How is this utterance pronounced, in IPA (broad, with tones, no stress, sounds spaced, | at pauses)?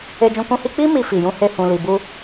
e˧ d͡ʒ ũ˧ k ũ˦ h i˦ k͡p i˦ m i˧ f i˨ j ũ˧ h e˧ h ũ˨ l i˨ b u˧